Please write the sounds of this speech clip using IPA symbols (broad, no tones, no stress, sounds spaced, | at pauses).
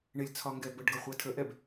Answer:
ɳ ɪ lʲ t͡sʰ ɒ ŋ ɡ ɛ b ə ɖ ɡ ʌ χʷ ɛ tʰ ə ʔ ɛ b